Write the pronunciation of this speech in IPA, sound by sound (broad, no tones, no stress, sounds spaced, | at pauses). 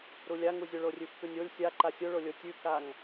ɾ u lʲ a ŋ u zʲ o ɭ o rʲ ʉ f k ʉ nʲ o lʲ sʲ a ǃ a sʲ o ɭ o lʲ o tʲ ʉ k a ŋ